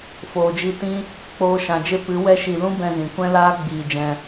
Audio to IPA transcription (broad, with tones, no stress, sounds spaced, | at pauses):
f oː˨ d͡ʒ i˧ t ĩ˦ | k͡p oː˧ ʃ ã˨ d͡ʒ e˦ p ɨ˨˦ w ɛ˦ ʃ i˧ l ũ˦ b ɛ̃˧ z ĩ˨ kʷ ɛ̃˦ l aː˦ ɡ͡b iː˧ d͡ʒ ɛ̃˧